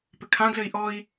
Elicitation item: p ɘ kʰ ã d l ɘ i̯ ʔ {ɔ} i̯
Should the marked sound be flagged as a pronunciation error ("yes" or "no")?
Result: no